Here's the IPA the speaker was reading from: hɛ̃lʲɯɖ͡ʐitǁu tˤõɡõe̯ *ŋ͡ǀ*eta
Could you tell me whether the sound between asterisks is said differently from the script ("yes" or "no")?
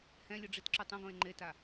yes